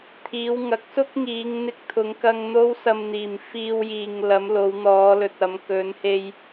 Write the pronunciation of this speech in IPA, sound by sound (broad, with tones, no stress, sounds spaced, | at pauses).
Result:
t̪ʰ iː˨˧ w ŋ ɐ˨˥ k̚ s ʊ˥ k̚ ŋ iː˨˧ ŋ n̪ ɪ˧ k̚ t̪ʰ ʊ˨˧ ŋ k ɐ˧ ŋ n̪ o˥ w s ɐ˧ m n̪ iː˨˩ m f iː˧ w j iː˨ ŋ l ɐ˨˧ m l o˨˧ w n̪ ɔː˨˧ l ɵ˨ t̚ ɐ˨˧ m k ɵ˨˧ n h e˧ j